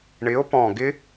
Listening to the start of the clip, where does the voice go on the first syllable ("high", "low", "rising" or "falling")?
rising